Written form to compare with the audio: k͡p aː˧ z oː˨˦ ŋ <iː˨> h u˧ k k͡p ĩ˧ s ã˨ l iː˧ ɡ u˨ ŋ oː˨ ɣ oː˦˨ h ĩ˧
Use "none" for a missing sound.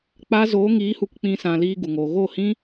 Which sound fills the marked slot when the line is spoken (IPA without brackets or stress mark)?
iː˨˦